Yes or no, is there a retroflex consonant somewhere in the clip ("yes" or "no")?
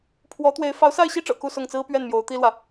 yes